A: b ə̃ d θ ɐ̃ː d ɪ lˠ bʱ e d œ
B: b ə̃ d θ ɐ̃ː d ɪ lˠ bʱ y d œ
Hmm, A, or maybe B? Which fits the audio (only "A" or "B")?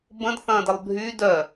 B